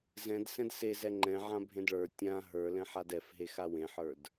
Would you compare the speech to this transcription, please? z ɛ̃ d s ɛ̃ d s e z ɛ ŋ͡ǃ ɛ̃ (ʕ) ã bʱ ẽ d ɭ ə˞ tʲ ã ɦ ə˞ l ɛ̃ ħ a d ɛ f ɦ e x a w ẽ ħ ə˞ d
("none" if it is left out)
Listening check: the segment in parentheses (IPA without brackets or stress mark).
ʕ